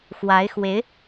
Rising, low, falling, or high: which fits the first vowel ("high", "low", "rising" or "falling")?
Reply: rising